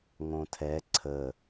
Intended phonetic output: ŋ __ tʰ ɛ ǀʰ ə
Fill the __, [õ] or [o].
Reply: õ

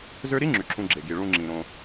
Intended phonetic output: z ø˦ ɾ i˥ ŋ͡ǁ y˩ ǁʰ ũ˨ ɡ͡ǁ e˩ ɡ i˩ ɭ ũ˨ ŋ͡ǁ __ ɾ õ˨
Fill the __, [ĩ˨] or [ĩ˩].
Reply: ĩ˩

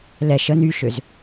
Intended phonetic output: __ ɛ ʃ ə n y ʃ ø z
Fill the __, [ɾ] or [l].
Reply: l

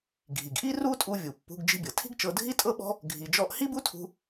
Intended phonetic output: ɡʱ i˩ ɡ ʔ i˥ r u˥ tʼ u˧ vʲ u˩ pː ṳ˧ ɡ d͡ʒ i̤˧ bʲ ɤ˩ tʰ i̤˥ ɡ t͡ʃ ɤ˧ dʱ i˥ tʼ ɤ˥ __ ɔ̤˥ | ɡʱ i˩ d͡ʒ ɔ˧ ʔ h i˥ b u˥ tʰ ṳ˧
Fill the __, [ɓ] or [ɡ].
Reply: ɓ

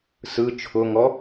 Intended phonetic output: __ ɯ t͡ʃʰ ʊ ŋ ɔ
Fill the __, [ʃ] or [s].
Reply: s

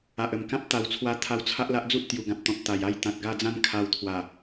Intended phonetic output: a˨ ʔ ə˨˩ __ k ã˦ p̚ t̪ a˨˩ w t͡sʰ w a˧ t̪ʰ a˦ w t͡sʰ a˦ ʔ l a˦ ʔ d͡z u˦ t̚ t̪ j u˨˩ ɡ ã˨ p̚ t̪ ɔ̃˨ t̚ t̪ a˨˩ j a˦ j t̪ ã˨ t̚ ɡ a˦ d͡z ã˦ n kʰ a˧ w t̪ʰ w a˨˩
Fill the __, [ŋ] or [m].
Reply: m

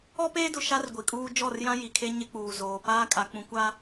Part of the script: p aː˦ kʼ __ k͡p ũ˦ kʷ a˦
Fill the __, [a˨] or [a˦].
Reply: a˦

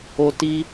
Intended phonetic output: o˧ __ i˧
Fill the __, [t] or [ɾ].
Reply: t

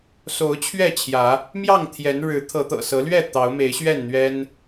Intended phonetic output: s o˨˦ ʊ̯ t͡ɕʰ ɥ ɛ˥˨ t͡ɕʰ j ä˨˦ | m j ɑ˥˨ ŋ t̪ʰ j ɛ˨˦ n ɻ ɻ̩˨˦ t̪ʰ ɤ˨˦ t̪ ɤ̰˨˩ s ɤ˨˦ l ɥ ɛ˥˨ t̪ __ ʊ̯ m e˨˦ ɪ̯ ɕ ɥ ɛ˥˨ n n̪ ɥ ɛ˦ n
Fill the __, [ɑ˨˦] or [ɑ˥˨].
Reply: ɑ˨˦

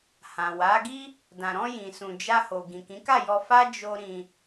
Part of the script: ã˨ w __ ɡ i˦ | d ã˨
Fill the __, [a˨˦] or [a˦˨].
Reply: a˨˦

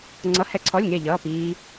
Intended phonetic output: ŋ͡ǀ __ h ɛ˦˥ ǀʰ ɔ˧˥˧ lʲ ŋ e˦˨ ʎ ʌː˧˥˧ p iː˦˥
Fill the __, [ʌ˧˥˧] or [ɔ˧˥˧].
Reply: ʌ˧˥˧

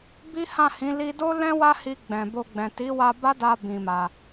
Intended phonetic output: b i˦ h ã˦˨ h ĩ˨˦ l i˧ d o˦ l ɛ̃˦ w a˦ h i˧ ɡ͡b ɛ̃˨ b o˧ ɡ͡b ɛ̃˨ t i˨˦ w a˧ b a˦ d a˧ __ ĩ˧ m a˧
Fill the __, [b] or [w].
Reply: b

